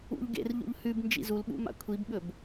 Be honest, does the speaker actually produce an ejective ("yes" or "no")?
no